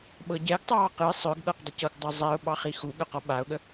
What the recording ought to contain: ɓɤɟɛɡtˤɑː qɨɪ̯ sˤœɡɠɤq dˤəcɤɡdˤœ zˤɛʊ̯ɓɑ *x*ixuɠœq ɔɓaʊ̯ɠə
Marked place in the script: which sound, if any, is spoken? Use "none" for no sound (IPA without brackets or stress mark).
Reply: χ